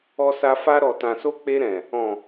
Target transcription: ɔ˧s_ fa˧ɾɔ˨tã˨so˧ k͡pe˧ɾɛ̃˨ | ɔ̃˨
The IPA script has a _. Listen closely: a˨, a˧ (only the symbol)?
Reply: a˧